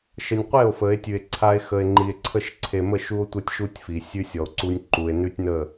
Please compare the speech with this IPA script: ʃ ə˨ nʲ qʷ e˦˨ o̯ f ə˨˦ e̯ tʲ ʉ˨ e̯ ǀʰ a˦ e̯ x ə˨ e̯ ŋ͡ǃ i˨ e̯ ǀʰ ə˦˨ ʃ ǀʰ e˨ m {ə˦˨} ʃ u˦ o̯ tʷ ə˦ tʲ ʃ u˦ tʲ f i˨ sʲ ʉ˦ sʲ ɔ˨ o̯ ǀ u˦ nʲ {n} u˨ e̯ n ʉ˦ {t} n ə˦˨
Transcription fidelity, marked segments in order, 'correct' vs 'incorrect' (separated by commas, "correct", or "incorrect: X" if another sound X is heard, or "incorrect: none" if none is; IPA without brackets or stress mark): correct, incorrect: ǃ, incorrect: tʲ